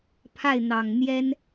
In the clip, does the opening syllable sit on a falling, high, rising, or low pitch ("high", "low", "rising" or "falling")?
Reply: falling